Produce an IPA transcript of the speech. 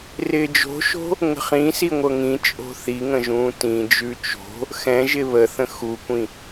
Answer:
r ɪː d͡ʒ o̤ ʃ o̤ | ŋ ə̤ χ ĩ s i ŋʷ ɤ ŋ ĩ t͡ʃʼ o̤ θ i ŋ ə̃ ʒ ũː t ĩ d͡ʒ ʉ t͡ʃ o̤ | x ɛ̃ ʒ ɪ β ə θ ə̃ x u kʷ ĩ

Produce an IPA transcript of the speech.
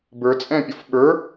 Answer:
b ə˞ t͡sʼ ɛ̃ pʲ ɔ f ɓ ə˞

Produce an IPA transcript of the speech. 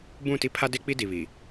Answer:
b ũ˦˨ t i˦ pʰ a˦ d e˦ k͡p i˦ d i˨ β i˨

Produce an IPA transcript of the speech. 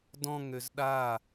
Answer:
d ɔ̃ ŋ ø z ɗ a

